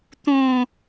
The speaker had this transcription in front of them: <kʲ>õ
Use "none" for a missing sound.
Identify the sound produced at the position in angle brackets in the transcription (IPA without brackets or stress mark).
t̪